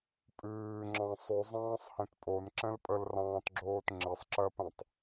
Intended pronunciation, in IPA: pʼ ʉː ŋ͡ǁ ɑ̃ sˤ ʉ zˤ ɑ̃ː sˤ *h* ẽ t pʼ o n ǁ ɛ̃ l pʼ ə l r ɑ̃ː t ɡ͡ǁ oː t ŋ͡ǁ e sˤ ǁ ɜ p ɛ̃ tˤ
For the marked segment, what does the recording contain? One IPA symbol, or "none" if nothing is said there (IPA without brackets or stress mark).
h